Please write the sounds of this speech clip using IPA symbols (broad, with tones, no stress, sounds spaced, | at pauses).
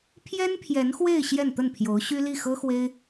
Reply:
pʰ j ɛ˥ n pʰ j ɛ˧˥ n x w e˥˧ ɪ̯ ɕ j ɛ˥˧ n t̪ ə˥˩ n pʰ j o˧˥ ʊ̯ ɕ y˥ l i˥˩ x ɤ˥ x w e˥ ɪ̯